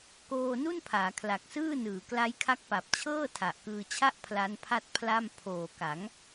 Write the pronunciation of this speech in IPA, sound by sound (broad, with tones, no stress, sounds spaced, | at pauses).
k oː˧ n u˥˩ n pʰ aː˩˦ kʰ l a˨˩ k̚ s ɯː˥˩ n ɯː˩˦ k l a˦˥ j kʰ a˦˥ k̚ p a˨˩ p̚ t͡ɕʰ ɤː˥˩ tʰ a˨˩ ʔ k ɯː˧ t͡ɕʰ a˥˩ ʔ pʰ l a˦˥ n pʰ a˥˩ t̚ pʰ l a˥˩ m pʰ oː˨˩ k a˩˦ ŋ